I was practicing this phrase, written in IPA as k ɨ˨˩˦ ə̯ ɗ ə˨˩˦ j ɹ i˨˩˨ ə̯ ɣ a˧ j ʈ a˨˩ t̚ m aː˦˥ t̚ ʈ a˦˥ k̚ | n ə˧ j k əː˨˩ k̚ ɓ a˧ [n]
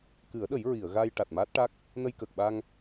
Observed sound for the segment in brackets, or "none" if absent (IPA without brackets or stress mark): ŋ